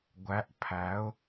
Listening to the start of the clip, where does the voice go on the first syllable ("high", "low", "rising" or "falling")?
rising